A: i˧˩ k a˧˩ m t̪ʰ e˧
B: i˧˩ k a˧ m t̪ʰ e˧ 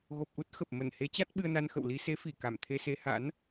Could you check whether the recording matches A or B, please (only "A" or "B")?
A